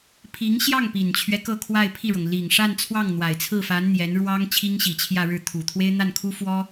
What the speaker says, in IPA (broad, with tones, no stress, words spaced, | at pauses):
pʰi˧˥ŋɕjɑ˥˩ŋpi˨˩nt͡ɕʰɥɛ˦ kɤ˥˧kʰwa˥˧ɪ̯pʰi˥˩ɻɤ˩ŋ li˨˩ŋ ʂa˥˧nt͡sʰwɑ˥˩ŋ n̪wa˨˩ɪ̯t͡sʰɹ̩˥˩fa˧˥n n̪jɛ˧˥nɻwɑ˥ŋ t͡ɕʰi˥ŋɕi˨˩t͡ɕʰjä˥˧ɻɻ̩˥˩ t̪ʰu˨˩t̪ʰwe˥ɪ̯n̪a˥˩nkʰu˥ fwɔ˥